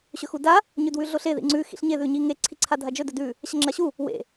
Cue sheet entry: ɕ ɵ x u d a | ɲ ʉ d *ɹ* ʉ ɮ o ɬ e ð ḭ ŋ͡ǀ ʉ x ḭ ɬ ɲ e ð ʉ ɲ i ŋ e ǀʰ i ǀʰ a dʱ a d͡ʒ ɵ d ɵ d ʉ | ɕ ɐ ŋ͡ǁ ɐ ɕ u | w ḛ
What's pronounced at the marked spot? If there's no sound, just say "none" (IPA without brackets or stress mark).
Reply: w